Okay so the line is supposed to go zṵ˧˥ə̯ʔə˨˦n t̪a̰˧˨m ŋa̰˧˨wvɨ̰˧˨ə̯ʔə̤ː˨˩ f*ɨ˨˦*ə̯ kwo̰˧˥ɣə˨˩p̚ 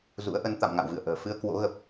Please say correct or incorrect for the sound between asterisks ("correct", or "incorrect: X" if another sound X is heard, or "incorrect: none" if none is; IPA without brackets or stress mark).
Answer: incorrect: ɨ˧